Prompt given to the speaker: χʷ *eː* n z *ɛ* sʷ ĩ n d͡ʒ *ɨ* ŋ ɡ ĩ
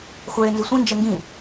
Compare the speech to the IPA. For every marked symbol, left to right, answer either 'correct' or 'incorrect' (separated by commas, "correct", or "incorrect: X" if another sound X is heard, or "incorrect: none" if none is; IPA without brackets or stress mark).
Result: correct, incorrect: ɪ, incorrect: ɛ